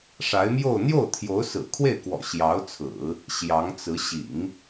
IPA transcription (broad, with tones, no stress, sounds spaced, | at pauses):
ʂ a˧˥ ɪ̯ m j o˥˧ ʊ̯ n̪ j o˥˩ ʊ̯ t̪ʰ j o˧˥ ʊ̯ s ɹ̩˨˩ kʰ w e˥˩ ɪ̯ k w ɔ̰˨˩ ɕ j ɑ˧˥ ʊ̯ t͡sʰ ɹ̩˨˩˦ | ɕ j ɑ˧˥ ŋ t͡s ɹ̩˧˥ ɕ ḭ˨˩˦ ŋ